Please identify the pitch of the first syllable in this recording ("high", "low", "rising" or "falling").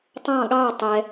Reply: falling